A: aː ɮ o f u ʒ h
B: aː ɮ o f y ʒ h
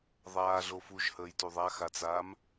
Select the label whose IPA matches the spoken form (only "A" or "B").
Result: A